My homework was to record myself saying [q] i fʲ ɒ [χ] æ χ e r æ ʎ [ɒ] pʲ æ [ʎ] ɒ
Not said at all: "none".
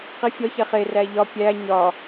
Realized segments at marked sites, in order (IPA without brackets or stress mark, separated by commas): q, ç, ɒ, ɲ